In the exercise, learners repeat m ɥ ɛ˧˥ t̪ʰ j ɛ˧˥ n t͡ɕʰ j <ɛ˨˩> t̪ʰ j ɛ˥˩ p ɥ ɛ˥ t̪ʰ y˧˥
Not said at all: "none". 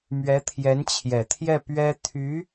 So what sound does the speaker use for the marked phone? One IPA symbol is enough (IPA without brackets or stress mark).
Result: ɛ˨˩